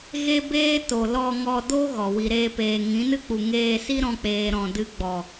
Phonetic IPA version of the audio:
ɣ e˦ b eː˦ t o˨ l ɔ˧ ŋ ɔ˧ d o˦ ɣ ɔ˨ w i˨ ɾ eː˧ p eː˨ ŋ ĩ˨˦ n ɨ˦ k͡p u˨ ŋ eː˧ s i˦ ɾ ɔ̃˧ k͡p eː˨ ɾ ɔ̃˨ d ɨ˧ ɡ͡b ɔ˨

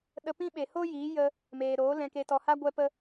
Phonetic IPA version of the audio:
ɗ ə˧ p ĩ˦ ɓ e˨ h oː˦ j iː˨˦ j ə˧ | m eː˨ ɾ oː˨˦ l ɛ̃˧ k e˧ t ɔ˧ h a˦ ɡʷ ɛ˦ p ə˦

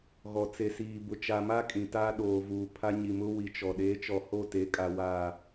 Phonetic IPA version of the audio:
ɣ ɔ˨ t͡s e˨ s iː˨ b ʊ˨ t͡ʃ a˨ m a˦ kʼ ĩ˨ t aː˦ ɗ oː˨ v uː˨ pʰ a˦ ɲ i˨ m ʊ˦ w i˨ t͡ʃ ɔ˨ ɗ eː˨˦ t͡ʃ ɔ˨ h o˦˨ t e˨˦ kʼ a˨ w a˦˨

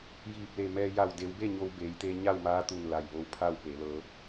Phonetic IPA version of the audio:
j iː˧˩ p̚ l e˧˩ m ɛː˧ j a˧˩ w d e˩˧ w b e˥˨ ɲ o˧ w b eː˩˧ j t̪ eː˧ ɲ a˥˨ w m aː˧˥ t̪ u˧˩ n l a˧˩ j ʋ o˧˥ w pʰ a˥˨ w p e˩˧ l ɤː˩˧

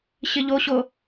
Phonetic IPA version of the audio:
ɕ ɪ ʎ o ɕ o

